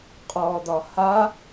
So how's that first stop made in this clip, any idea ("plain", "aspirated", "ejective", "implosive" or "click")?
ejective